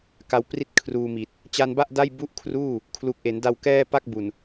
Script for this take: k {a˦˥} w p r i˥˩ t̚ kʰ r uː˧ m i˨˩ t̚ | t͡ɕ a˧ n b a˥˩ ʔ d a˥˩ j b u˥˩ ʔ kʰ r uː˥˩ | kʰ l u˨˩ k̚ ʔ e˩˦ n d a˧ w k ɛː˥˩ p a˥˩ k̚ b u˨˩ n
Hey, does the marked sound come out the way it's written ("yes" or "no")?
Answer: yes